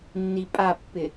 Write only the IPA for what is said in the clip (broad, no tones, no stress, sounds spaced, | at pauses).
nː i pʼ a pː ɪ